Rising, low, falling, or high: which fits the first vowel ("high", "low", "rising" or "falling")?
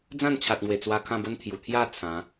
falling